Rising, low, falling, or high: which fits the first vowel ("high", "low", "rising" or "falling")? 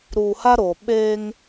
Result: low